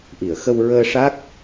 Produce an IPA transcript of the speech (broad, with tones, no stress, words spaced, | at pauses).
ʔi˨˩˨ə̯xə˧w ɹəː˧ʂa˦˥k̚